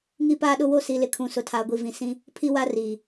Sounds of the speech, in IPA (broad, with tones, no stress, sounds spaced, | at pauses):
ŋ i˦ p aː˦ ɗ ʊ˦ w o˦ s i˨ l ɪ˨ kʰ ũ˨ s ʊ˨ tʰ aː˨ ɡʷ i˨ v ĩ˨ s ĩ˦ | pʰ i˦ w a˦ r iː˨